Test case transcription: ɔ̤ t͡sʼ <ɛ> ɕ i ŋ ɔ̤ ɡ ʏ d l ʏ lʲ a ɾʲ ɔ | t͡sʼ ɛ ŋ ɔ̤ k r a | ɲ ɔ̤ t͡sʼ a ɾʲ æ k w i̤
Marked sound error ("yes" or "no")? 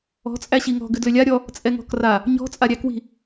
yes